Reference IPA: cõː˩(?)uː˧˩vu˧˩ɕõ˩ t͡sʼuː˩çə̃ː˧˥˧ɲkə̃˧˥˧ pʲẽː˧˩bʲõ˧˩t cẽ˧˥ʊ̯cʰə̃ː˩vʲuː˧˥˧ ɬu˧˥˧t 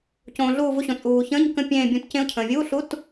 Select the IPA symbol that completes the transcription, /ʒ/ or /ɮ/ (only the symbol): ɮ